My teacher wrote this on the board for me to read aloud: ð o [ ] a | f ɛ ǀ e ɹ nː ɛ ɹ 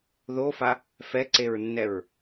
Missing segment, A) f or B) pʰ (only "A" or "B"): A